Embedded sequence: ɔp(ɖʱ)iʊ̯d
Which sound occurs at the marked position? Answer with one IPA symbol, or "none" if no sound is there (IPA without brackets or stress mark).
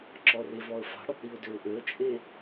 ɽ